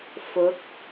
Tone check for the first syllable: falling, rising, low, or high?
rising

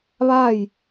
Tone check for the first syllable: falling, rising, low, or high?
falling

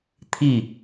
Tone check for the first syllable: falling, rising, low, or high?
falling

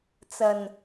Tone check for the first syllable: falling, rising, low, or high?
low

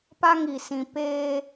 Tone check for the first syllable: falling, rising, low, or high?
high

